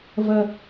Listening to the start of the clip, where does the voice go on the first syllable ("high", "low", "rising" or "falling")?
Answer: high